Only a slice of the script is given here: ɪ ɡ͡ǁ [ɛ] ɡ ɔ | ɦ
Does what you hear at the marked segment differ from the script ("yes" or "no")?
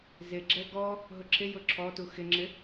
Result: no